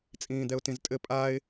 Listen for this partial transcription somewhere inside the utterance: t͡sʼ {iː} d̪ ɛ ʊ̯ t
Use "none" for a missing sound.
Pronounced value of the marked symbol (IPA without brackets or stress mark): ĩː